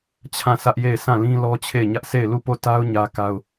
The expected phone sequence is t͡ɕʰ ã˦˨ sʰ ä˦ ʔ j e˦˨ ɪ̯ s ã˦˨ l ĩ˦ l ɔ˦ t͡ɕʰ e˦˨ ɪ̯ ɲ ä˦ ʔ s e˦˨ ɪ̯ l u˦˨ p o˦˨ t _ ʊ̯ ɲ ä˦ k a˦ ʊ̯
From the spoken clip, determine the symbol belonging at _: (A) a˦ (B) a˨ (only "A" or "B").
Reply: A